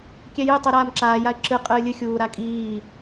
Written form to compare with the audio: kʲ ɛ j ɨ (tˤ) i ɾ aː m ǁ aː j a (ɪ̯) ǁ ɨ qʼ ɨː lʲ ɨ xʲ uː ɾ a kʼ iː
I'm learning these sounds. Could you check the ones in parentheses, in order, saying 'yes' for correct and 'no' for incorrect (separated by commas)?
yes, yes